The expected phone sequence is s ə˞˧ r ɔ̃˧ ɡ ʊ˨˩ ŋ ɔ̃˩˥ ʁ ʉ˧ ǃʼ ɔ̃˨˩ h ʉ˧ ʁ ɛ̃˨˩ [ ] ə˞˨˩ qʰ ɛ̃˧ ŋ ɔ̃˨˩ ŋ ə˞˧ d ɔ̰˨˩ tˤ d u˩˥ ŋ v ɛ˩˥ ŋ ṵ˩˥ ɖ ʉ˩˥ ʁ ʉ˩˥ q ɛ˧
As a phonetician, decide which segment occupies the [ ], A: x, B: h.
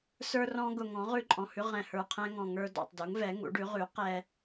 B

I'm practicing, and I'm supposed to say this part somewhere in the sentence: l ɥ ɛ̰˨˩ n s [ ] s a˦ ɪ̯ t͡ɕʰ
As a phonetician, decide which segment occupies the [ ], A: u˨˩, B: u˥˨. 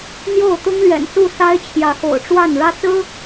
B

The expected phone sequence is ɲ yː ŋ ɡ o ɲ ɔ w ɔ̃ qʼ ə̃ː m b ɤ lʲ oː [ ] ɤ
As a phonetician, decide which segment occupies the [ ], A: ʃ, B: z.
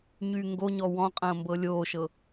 A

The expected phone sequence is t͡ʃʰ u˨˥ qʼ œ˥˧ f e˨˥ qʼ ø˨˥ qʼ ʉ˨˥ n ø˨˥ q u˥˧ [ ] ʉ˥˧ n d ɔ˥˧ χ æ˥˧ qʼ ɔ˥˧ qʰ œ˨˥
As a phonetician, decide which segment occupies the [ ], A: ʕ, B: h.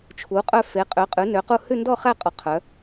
B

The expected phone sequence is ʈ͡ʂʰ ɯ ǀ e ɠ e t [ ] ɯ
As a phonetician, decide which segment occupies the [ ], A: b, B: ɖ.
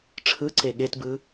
A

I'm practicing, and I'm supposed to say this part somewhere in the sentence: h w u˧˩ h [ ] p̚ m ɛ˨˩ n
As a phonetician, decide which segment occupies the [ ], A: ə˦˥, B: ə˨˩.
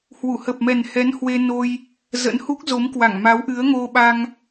B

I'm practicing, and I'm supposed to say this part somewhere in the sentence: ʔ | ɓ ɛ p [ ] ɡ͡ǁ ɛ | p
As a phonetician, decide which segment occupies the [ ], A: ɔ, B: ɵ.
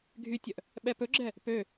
B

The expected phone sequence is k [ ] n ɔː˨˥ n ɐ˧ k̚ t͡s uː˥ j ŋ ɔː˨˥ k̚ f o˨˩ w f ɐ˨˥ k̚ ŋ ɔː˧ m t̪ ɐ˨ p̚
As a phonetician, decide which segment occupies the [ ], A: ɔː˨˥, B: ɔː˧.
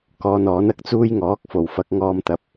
B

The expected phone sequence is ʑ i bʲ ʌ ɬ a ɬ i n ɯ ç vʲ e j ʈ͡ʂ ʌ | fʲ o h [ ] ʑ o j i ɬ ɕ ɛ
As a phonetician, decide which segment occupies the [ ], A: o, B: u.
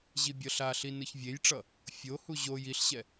B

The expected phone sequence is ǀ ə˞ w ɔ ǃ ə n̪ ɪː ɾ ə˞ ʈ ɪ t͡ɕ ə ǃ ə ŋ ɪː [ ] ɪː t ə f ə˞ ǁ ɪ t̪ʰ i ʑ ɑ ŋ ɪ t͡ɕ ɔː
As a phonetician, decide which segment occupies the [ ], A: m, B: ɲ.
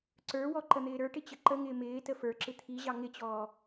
A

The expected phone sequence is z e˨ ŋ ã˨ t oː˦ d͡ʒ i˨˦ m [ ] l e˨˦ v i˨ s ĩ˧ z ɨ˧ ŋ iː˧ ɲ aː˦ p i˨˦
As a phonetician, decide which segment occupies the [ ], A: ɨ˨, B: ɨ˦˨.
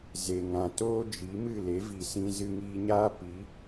B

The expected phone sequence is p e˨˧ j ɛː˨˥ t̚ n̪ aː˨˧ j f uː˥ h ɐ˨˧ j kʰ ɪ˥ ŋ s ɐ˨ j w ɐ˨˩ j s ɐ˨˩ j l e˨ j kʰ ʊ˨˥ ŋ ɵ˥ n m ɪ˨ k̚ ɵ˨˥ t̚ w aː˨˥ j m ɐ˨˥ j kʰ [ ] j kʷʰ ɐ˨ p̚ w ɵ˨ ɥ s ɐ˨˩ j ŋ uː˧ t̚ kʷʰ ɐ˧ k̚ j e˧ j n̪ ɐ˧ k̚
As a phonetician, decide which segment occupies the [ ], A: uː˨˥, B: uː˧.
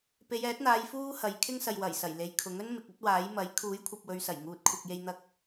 A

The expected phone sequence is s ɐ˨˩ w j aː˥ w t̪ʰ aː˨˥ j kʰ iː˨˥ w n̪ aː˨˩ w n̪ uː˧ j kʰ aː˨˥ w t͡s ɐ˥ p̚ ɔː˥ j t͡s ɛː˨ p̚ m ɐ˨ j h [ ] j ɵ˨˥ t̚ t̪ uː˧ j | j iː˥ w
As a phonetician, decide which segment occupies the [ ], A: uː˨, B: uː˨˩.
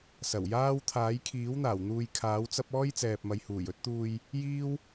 B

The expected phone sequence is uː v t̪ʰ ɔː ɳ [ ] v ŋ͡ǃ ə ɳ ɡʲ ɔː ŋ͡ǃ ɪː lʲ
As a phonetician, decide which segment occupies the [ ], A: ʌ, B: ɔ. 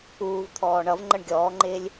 A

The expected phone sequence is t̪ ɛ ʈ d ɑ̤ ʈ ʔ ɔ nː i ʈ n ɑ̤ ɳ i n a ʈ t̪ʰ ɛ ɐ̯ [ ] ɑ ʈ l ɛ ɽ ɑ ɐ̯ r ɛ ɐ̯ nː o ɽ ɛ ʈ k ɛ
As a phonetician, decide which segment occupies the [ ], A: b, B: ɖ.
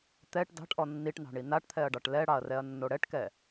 B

